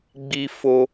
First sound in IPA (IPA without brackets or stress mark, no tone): ɡ͡b